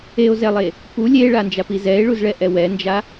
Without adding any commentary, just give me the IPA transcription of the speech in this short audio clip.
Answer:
eo̯zɛlˠe | pu lʲeɭand͡ʒapi zɛe̯ɭuzɭɛʔɛ wɛnd͡ʒa

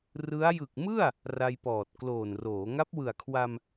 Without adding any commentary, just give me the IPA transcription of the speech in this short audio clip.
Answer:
rɯ˦˥a̯ jɯ˨˩k̚mɯ˥˩a̯ | ra˧jpɔː˨˩t̚ kloː˨˩n roː˩˦ ŋa˦˥p̚wɯ˨˩a̯kʰwa˧m

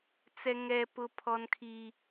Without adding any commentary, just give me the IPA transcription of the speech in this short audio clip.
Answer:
t͡sɛ˦ŋɛ˦pʊ˦ pʰɔ˦nkʰi˦

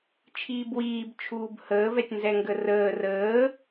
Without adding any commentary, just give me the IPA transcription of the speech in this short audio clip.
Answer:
t͡ʃʰiːbwiːb t͡ʃʰuːbhəː vɛtʲnzɛŋɡərəː rəː

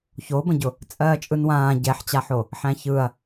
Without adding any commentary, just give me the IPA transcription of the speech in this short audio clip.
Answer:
çobə̃ɟʊ | t͡sʼɜːt͡ʃʼɯnwãː ɟɛħt͡ɕaħo | ħæ̃çɯɐ̯

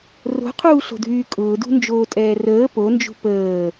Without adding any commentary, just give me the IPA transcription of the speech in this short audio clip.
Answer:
ro̤qʰuːɬo̤dʱyː kʼʊːdṳnd͡ʒoːtʼɛː rəː pond͡ʒṳ pəː

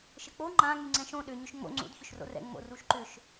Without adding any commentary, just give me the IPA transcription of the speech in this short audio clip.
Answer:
ʃɘk͡po ŋ͡ǃã ŋyŋ͡ǀɛ̃ʃõ ɗʏ ɲʏʃŋ͡mo̰ ŋ͡ǀṵd çʏʃro̰rɛ̰ ŋ͡mo̰ruʃǃʏʃ

